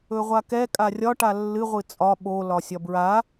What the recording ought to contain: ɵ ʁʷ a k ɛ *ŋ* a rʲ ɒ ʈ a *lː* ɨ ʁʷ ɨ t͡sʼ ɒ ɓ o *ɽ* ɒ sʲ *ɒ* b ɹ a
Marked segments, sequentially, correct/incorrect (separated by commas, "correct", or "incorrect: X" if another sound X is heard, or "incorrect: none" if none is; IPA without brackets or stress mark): incorrect: kʼ, correct, incorrect: l, correct